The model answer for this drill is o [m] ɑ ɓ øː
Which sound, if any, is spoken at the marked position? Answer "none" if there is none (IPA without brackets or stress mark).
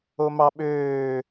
m